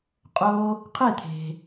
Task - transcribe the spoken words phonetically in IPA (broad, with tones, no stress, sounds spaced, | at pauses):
qʼ o˥ | qʰ e˥˧ t̪ʰ e̤˧